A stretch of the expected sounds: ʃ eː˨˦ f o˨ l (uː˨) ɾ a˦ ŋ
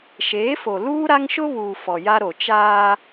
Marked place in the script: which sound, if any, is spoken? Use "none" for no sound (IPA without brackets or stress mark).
uː˦